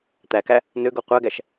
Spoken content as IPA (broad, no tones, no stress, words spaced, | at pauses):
t̪ækæ | nøɡo qʷæɡæʃ